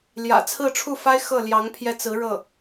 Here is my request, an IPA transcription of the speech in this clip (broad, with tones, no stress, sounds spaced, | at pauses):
l j ä̰˨˩ t͡sʰ ɹ̩˥˧ ʈ͡ʂʰ u˥˩ f a˥ ɪ̯ x ɤ˥˩ l j ɑ˧˥ ŋ pʰ j ɛ˧ t͡s ɹ̩˧˥ ɻ ɤ˥˩